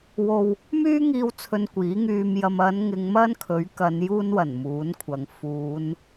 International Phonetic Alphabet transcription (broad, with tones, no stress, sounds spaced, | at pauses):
w o˨ w | m yː˥ ŋ iː˧ w t͡sʰ ɵ˧ n kʷ iː˨˥ ŋ yː˧ m j ɐ˧ m ɐ˨˧ n ŋ ɪ˨˧ ŋ m ɐ˥ n kʰ ɵ˨˥ ɥ k ɐ˨˧ n j uː˧ n w ɐ˨˩ n m uː˨˥ n kʷʰ ɐ˨ ŋ f uː˨˧ n